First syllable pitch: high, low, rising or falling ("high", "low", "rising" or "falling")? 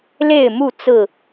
falling